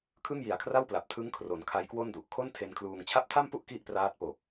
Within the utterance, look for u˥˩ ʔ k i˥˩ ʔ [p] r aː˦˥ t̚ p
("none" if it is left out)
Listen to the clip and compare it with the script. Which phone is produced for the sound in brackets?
p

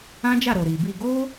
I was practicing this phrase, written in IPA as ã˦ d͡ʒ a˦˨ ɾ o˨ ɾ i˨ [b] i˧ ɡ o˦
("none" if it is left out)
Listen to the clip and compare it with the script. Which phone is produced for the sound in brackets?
b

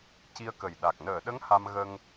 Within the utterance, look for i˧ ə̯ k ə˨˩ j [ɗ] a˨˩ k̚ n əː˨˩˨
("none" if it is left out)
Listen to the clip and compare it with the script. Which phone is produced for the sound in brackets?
ɗ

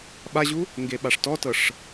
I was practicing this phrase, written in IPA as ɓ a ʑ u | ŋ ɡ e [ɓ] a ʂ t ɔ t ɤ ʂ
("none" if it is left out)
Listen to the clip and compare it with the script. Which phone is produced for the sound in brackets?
ɓ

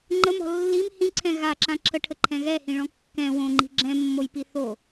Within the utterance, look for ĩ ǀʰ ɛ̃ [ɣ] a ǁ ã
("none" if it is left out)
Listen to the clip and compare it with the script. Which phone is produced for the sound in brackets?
ɣ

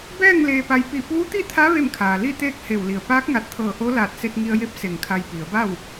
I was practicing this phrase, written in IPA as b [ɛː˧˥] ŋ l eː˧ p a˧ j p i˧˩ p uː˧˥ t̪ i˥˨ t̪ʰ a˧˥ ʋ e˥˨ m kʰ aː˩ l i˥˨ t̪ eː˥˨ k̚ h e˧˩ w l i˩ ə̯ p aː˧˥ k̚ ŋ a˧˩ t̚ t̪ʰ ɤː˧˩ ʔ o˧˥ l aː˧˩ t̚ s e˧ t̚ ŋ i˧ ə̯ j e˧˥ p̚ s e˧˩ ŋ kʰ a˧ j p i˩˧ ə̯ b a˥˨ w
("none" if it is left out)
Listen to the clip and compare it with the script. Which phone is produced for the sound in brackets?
ɛː˥˨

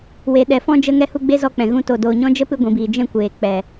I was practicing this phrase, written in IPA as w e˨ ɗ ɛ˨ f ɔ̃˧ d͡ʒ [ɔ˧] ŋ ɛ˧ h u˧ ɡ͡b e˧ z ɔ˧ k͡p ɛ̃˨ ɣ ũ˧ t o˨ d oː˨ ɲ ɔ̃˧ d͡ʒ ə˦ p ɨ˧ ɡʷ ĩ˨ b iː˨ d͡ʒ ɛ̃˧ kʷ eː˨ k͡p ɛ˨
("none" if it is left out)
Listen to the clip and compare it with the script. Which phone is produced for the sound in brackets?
ə˧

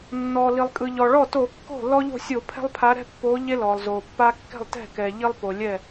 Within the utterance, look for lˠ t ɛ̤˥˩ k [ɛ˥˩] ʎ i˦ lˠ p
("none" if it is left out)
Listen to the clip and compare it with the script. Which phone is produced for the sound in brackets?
ɛ˩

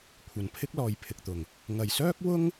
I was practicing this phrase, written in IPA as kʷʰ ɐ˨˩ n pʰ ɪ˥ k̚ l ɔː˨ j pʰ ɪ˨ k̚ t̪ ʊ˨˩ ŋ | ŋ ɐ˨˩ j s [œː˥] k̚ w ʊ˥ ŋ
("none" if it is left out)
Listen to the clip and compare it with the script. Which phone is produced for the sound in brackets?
œː˥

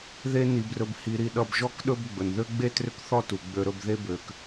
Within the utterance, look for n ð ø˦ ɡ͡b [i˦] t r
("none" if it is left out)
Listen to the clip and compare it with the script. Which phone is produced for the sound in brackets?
e˦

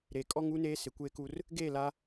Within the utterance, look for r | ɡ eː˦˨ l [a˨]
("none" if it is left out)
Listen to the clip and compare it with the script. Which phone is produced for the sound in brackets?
a˦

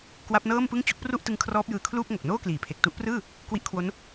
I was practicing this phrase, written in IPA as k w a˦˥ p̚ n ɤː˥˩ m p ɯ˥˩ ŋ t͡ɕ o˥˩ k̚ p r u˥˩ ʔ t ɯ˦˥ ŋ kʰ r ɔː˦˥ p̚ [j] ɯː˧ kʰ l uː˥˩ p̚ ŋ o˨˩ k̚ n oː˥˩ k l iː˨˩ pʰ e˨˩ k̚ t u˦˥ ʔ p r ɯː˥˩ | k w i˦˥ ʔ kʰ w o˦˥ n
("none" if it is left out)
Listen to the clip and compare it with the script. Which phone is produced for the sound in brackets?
j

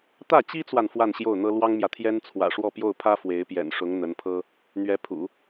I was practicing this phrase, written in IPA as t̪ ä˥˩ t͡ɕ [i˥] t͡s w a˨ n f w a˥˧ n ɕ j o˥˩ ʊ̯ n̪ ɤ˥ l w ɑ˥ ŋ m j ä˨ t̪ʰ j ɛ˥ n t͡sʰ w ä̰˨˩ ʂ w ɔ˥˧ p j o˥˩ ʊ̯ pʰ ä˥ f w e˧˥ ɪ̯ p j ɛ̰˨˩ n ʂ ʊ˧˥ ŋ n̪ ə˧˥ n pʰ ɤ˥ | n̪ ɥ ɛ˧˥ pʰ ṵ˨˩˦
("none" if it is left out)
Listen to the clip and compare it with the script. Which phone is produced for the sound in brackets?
i˥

